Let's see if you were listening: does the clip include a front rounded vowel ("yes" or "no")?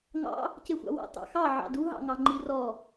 no